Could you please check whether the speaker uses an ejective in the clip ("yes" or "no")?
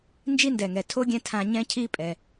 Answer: yes